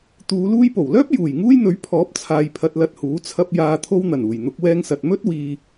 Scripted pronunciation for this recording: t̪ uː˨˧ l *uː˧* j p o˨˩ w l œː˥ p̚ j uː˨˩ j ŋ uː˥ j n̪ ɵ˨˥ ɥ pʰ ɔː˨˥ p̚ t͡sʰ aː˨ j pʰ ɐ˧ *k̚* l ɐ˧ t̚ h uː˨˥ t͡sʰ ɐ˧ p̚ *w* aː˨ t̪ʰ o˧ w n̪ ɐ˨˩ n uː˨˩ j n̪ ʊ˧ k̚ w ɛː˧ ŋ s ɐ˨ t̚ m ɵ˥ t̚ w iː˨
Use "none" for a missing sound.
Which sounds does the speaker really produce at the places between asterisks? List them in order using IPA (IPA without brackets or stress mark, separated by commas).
uː˧, t̚, j